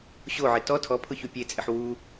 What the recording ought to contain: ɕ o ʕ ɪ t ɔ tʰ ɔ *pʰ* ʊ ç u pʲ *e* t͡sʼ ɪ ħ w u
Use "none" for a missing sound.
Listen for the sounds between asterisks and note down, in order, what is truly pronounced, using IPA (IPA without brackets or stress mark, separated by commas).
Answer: pʰ, e